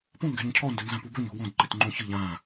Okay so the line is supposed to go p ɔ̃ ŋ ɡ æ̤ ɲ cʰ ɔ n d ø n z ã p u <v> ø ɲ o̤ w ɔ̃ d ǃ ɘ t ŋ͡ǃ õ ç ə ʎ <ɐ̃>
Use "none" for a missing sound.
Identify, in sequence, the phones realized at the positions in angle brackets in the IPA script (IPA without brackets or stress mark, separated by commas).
b, ã